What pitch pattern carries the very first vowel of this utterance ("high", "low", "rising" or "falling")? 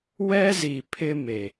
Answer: high